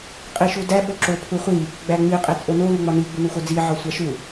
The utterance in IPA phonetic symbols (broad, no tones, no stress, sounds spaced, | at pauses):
qʼ i ʃ u d æ ɓ o ǁ o pʰ u χʷ i | ɡ͡b æ ŋ͡m i qʼ e t͡sʼ o n o l u ŋ͡m ɒ n i ɡ͡b u n u x o d͡z i ʕ ɒ sʷ æ ʃ u